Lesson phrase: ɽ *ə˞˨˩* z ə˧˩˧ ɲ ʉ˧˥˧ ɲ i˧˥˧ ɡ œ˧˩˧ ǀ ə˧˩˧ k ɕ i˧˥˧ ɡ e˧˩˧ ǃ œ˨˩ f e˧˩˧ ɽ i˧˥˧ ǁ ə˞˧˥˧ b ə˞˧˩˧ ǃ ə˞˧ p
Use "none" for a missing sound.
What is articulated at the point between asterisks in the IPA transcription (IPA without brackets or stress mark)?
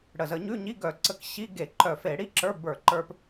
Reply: ə˨˩